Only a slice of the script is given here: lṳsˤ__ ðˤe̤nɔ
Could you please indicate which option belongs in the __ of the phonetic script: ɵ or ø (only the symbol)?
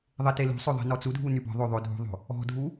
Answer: ɵ